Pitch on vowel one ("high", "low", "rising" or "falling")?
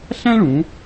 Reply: high